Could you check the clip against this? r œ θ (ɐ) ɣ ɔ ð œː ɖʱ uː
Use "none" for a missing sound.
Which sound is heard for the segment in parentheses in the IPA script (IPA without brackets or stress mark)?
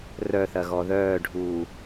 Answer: ɐ